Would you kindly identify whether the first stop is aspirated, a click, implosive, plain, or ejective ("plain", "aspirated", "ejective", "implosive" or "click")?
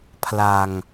aspirated